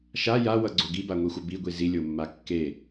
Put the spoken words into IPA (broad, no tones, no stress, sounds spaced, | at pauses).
ʃ a j a w ʌ ɡ͡ǀ o ɡ i b a ŋʷ i xʷ ʌ b i ɡʷ i z i lʲ o mː a kː e